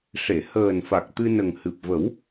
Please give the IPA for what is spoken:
ʂ e˨˩˨ h əː˨˩ n f a˨˩ k̚ t̪ ɨ˧ n ə˨˩ ŋ h ɨ˨˩ p̚ v ə˨˩˦ w

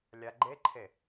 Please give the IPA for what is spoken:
lʲ a ɡ͡ǃ e ǃʰ e

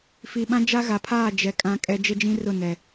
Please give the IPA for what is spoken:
f i˨ ɓ ã˦ d͡ʒ a˦ ɣ a˨ pʰ aː˦˨ d͡ʒ ɛ˨ kʼ ã˦ kʼ ɛ˦ d͡ʒ ɪ˦ d͡ʒ ĩ˦ r ʊ˦˨ n ɛ˨

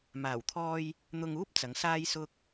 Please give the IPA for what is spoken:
m aː˨˩ w t̪ʰ ɔː˧ j | n̪ ʊ˧ ŋ uː˥ p̚ t͡s ɐ˨˥ ŋ s aː˥ j s ʊ˥ k̚

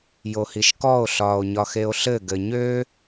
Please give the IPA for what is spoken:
j o h i ʃ k ɔ o̯ ɬ ɒː o̯ ɲ ɒ x e o̯ ɬ ɘ ɡ ɘ ɲ ø

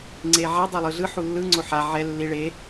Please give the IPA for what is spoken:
ŋ͡ǀ e ʕ a dˤ ɛ lˠ ɯ ɮ ɯ ħ u lː ɯ ŋ͡ǀ o ħ a ʕ ɛ lː i ɭ e

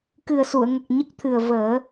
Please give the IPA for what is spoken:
k ɨ˨˩ ə̯ s u˨˩˨ ə̯ ŋ ə˨˩ k̚ ɲ ə˦˥ k̚ t̪ʰ ɨ˨˩ ə̯ v əː˨˩˦

